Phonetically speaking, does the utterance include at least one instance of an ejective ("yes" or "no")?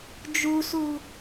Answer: no